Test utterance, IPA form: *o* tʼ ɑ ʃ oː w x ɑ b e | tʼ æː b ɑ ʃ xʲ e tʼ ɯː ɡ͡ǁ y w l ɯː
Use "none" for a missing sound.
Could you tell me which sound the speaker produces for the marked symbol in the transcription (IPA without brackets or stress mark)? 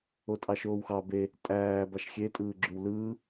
o